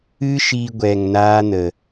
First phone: ɨ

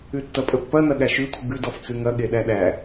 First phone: ʉ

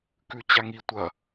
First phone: k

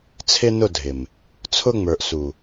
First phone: t͡sʰ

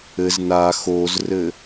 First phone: ɘ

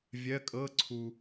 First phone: vʲ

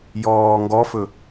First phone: j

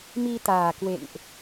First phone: m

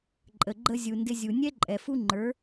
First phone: ǃʼ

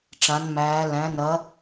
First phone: ʈ͡ʂ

